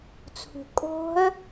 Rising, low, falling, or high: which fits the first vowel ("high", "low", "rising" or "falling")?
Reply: low